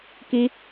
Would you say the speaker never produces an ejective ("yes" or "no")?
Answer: yes